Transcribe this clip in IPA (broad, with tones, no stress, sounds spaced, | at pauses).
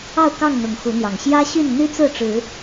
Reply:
ɑ˥˨ ʊ̯ k ɑ˥˨ ŋ n̪ ʊ˨˦ ŋ x u˨˦ n̪ j ɑ˨˩ ŋ ɕ j ä˦ ɕ y˥˨ n n̪ y˦ t͡s ɹ̩˥˨ ʈ͡ʂ ɻ̩˨˦